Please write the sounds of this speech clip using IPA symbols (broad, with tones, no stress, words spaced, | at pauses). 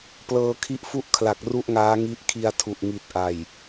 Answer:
plɤː˧kʰi˦˥ʔfu˥˩ʔkʰla˨˩k̚ ru˥˩ʔŋaː˦˥ŋi˦˥ʔ kʰi˧a̯tʰu˨˩ʔ ŋi˨˩t̚ʔa˨˩j